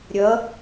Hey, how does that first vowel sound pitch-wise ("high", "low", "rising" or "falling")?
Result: rising